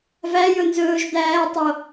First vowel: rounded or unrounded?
unrounded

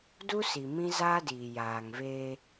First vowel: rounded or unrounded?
rounded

